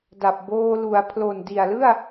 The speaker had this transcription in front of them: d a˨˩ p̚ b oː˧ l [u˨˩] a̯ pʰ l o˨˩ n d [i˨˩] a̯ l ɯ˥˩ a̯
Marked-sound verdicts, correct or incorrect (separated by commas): incorrect, correct